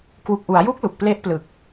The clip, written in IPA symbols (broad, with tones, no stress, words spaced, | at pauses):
kwu˨˩k̚ʔu˩˦a̯ju˦˥k̚ lu˨˩k̚ple˦˥ʔplɯ˨˩k̚